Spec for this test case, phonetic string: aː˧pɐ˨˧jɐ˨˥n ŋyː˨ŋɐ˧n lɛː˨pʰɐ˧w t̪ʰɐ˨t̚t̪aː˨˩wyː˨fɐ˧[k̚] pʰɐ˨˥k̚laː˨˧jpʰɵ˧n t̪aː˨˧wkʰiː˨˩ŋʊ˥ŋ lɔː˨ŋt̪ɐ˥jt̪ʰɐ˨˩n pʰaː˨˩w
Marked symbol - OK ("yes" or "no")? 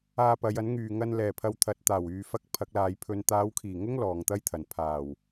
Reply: yes